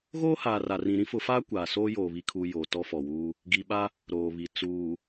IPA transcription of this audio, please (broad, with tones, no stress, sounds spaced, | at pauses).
ɣ oː˦ h aː˨ r a˨ r ĩ˨ ɾ ĩ˦ f ʊ˨˦ f aː˦ kʷ aː˨ s oː˦ j oː˨ β i˨ kʰ uː˨ j oː˨ t ɔ˦ f ɔ˨ w uː˦ | ɡ i˨ ɓ a˦ | ɾ oː˨ β i˨ t͡s uː˨